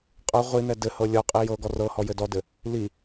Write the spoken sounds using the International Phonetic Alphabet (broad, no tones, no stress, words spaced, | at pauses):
qʼɤ ʁʷin̪ɛ dɘhɤ lʲɔqʼi jɤɡɔ rɤhɔ jɘdɔdɘ | li